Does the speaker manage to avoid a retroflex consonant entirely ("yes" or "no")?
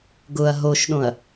yes